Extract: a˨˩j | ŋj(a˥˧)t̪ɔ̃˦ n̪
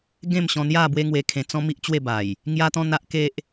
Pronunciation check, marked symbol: incorrect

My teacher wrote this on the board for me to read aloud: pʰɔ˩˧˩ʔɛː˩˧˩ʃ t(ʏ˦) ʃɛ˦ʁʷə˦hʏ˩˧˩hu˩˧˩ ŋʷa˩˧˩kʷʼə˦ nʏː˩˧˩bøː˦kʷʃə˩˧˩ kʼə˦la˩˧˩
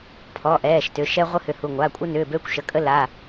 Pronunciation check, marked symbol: incorrect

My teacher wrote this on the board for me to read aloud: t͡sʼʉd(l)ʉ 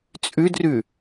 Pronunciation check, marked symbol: incorrect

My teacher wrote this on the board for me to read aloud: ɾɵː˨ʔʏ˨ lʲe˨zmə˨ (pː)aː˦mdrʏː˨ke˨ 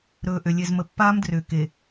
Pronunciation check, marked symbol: correct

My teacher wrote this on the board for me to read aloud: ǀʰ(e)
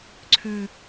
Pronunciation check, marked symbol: incorrect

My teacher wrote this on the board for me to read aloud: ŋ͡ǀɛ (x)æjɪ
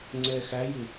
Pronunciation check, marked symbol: correct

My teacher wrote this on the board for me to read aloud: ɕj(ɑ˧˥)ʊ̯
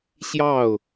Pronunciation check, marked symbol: incorrect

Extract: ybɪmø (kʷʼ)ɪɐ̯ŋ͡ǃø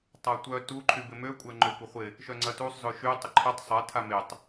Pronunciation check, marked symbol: correct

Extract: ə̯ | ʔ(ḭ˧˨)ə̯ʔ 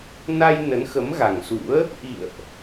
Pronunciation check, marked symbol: correct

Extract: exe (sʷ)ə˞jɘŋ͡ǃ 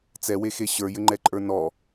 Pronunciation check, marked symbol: incorrect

